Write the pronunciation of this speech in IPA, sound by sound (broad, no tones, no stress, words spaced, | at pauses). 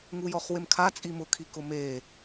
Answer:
ŋujɔχwɪmkʰa t͡sʼimʊ kʰikʊme